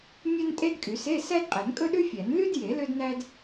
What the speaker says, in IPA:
mʲ œ˥ n tʼ e˥ d kʼ y˨˩˦ s e˧˥˧ s æ˥ d qʼ ɛ˨˩˦ n kʼ ɵ˥ ɗ ʉ˥ fʲ æ˨˩˦ n l y˥ d j e˨˩˦ l ø˥ d n æ˥ d

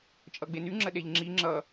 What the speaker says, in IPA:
t͡ʃʼ ʌ ɡ͡b e n y ŋ͡ǁ ə ɗ e ʎ ŋ͡ǁ i ŋ͡ǁ ʌ

